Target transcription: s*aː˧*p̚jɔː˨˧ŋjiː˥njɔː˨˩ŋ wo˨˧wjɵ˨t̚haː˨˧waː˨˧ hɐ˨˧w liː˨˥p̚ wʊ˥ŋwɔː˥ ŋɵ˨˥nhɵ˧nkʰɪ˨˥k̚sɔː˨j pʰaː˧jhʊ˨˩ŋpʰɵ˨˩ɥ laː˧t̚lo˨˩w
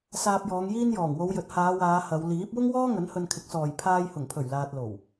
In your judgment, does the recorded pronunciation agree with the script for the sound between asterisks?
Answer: yes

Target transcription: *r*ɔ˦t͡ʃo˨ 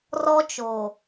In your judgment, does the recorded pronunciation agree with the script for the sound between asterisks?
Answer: yes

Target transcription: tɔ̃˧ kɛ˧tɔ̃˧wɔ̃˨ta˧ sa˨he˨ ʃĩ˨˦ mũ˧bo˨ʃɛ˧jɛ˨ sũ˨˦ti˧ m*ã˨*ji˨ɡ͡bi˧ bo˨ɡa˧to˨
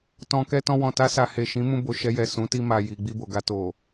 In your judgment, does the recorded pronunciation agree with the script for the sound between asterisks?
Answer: no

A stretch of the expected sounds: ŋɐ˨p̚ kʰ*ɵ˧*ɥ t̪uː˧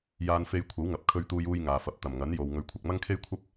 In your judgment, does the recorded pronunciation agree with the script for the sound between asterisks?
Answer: yes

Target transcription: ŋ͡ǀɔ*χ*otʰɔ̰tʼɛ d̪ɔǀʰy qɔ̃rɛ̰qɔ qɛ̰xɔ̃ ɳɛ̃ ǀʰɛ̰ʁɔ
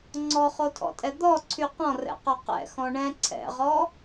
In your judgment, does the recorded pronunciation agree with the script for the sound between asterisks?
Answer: yes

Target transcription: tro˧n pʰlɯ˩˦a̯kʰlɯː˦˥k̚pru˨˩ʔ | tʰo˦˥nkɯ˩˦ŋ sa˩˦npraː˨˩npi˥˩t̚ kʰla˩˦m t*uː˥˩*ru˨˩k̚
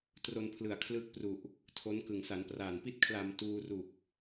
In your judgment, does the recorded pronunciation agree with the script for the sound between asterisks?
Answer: no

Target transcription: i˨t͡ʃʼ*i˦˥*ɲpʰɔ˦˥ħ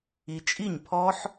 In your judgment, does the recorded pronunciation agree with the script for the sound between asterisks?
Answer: no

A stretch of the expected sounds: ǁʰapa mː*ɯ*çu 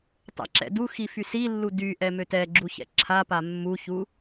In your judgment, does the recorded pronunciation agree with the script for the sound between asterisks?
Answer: no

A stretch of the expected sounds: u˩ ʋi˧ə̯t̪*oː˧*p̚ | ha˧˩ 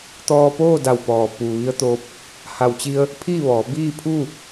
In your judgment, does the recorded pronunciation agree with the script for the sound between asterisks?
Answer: yes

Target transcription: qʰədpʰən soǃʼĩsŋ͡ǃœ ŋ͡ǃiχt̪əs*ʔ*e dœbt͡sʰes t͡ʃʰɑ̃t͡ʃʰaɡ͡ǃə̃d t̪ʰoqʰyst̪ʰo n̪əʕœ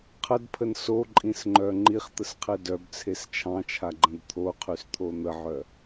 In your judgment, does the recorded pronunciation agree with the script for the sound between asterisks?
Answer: no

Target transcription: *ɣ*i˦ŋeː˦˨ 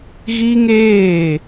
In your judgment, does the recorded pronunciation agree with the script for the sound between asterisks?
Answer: yes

